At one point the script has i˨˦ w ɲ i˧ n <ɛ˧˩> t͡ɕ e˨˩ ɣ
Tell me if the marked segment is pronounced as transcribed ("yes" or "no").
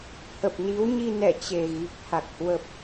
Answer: yes